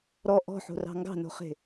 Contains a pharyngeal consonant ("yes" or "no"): yes